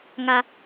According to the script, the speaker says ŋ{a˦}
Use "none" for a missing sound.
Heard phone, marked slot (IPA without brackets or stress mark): a˦